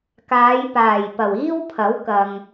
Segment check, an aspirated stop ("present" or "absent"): present